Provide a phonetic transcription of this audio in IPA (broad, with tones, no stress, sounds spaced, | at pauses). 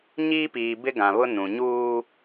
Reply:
ɲ iː˦ p iː˨ b ɪ˦ ɡ ã˨ β ʊ˦ n ũ˨ ɲ uː˦